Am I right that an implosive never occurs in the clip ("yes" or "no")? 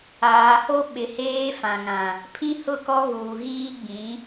no